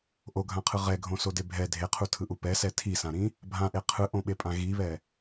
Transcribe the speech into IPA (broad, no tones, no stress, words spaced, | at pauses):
ʔoɡʱãqʰɯ ʁɛɡʱõsode bʱɛ dʱeqʰutʰɯʔu pɛsɛ tʰisãɾĩ | bʱãʔe qʰɯʔõɓepʼã ɣiβɛ